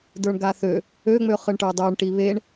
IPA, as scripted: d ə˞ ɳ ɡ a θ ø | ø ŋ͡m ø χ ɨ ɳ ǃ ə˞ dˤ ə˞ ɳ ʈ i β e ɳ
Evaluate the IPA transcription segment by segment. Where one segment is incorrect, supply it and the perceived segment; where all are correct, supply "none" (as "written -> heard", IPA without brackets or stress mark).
ǃ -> ʈ